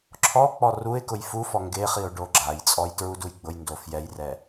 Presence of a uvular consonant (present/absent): present